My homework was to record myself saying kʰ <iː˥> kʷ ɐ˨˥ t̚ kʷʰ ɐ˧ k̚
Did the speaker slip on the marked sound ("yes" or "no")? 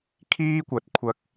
no